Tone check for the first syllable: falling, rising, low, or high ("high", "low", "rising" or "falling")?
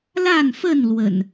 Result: falling